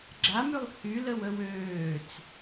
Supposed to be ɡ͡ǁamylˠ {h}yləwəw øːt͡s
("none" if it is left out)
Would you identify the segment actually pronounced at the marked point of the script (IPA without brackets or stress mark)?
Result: h